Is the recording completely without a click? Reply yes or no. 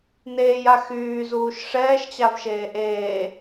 yes